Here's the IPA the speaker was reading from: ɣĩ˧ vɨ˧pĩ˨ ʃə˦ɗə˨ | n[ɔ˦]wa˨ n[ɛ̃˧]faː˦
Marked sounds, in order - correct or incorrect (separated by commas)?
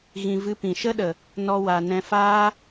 incorrect, correct